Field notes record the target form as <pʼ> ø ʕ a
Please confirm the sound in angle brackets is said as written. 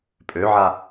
yes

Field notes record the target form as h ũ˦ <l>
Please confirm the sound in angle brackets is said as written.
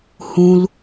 yes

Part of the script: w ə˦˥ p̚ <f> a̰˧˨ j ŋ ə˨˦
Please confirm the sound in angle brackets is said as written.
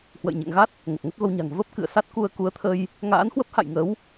no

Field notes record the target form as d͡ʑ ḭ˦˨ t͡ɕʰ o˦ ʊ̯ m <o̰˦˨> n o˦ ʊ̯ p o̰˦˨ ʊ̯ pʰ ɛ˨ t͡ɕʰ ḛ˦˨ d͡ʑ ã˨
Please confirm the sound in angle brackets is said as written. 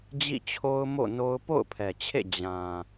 yes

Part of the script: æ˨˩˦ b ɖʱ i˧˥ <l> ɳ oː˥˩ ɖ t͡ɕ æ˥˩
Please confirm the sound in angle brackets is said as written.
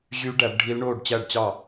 yes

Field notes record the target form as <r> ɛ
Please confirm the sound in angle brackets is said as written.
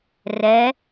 yes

